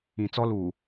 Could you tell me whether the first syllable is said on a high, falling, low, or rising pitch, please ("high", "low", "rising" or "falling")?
low